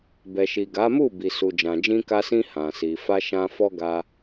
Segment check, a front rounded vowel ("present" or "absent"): absent